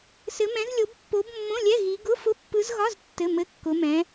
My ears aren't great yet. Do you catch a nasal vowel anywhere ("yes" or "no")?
yes